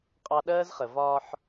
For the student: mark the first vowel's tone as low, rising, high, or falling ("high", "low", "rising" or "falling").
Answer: high